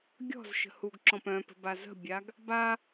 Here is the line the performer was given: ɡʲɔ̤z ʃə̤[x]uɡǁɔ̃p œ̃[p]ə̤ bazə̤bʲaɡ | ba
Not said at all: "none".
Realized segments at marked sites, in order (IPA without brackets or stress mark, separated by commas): h, p